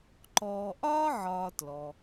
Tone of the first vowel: low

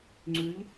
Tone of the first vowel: rising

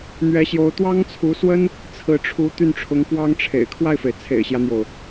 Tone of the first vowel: rising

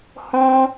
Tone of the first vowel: high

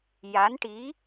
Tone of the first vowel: rising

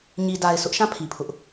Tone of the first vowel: low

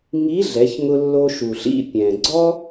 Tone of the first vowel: rising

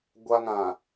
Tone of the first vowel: high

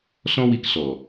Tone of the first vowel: high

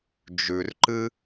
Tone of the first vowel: low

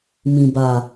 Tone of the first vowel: low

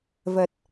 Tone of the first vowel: low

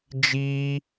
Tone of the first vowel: high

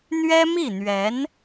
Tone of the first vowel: high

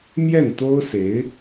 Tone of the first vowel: falling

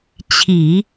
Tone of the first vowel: low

